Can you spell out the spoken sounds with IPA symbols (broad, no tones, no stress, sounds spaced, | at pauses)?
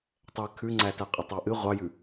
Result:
tˤ ɛ kʰ ʉ ŋ͡ǀ æ t æ qʼ ə tˤ æ ʔ ɨ ʁʷ ɑ j ʉ